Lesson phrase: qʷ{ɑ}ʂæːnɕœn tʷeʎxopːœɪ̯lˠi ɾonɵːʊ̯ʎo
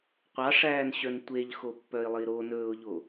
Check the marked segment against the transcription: correct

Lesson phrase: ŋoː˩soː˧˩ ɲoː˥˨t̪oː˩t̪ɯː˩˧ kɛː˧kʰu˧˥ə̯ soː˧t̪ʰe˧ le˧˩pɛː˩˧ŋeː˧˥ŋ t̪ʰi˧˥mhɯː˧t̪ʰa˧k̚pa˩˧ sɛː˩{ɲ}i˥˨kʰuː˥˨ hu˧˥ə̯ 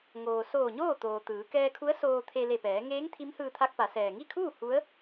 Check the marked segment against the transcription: incorrect: ŋ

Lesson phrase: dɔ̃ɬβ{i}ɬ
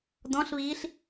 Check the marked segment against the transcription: incorrect: iː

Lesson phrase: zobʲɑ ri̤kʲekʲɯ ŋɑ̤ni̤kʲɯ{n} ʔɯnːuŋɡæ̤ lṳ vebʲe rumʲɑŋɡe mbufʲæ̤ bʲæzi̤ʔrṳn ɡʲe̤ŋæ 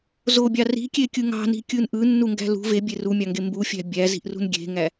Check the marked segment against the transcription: correct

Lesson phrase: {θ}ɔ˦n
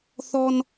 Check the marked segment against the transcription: correct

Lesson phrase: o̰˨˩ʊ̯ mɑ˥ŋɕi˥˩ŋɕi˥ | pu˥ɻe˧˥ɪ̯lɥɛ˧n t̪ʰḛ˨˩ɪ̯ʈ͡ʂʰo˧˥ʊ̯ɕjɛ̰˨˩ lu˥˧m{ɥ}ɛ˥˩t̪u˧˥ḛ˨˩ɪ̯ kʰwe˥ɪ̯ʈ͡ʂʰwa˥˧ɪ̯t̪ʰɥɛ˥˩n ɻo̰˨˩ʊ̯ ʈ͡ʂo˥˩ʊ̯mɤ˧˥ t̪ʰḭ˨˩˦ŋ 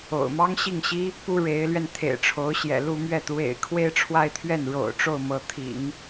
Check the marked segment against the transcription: correct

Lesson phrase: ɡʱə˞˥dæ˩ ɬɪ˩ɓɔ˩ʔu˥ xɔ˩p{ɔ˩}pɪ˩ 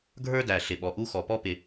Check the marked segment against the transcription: incorrect: ɔ˥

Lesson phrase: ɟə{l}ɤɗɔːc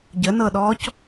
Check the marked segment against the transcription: incorrect: n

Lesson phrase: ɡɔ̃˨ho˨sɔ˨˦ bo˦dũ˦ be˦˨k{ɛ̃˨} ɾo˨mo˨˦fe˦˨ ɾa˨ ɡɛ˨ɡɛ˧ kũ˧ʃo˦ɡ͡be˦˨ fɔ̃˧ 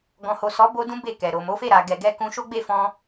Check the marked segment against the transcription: incorrect: ɛ˨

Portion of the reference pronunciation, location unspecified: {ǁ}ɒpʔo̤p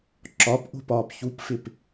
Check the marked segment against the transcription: correct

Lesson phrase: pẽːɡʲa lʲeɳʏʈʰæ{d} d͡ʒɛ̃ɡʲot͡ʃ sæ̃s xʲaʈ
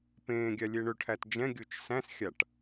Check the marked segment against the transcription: incorrect: t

